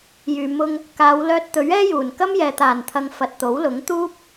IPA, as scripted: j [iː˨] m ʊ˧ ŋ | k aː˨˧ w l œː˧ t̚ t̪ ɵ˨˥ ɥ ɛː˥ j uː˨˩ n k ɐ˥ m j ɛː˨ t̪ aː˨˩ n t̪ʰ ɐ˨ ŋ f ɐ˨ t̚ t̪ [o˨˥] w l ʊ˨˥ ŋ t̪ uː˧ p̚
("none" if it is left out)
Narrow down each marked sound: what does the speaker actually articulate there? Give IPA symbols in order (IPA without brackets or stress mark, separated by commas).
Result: yː˨, o˨˥